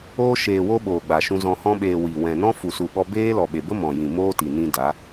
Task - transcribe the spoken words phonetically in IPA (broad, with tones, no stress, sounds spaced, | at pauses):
oː˧ ʃ eː˨ w o˧ ɓ oː˨ ɡ͡b a˨ ʃ ũ˧ z ɔ̃˨ h ɔ̃˧ ɓ eː˨ w i˨ w ɛ̃˨ n ɔ̃˦ f u˨ s u˨ ɓ ɔ˧ b eː˦ l ɔ˨ ɓ e˨ b ə˦ m ɔ̃˨ j ĩ˨ m oː˦ t i˨ n ĩ˧ d a˨˦